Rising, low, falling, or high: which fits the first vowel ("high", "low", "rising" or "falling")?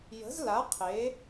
rising